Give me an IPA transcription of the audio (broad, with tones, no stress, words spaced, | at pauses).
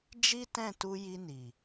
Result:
d͡ʒi˦tɛ̃˦˨tu˧ ji˧ni˨